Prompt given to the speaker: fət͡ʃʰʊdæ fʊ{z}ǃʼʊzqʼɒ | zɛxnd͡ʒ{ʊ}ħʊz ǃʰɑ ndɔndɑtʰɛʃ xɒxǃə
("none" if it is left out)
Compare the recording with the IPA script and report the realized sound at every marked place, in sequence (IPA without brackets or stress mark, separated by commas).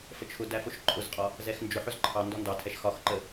ʃ, ʊ